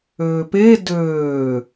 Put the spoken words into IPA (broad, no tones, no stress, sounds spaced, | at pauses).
øː p e d øː